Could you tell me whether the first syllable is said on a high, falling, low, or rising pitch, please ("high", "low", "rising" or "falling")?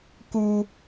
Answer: high